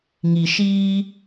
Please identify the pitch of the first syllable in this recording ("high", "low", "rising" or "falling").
low